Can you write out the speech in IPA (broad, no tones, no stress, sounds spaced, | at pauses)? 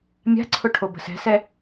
mʲ a̤ ǀʰ ʊ ʈʰ o b ə̤ s ɛ̤ s ɛ